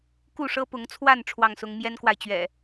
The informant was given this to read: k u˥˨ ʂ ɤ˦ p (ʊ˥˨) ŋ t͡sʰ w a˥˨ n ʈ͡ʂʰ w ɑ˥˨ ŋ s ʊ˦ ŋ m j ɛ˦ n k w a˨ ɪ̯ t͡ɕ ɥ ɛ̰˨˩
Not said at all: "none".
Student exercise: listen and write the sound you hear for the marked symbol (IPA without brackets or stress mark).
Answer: ʊ˨˦